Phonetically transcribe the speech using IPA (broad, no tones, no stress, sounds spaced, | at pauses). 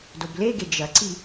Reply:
d o b l e ɡ e d͡ʒ ɐ ǀ i